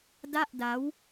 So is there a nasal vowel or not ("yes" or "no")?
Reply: no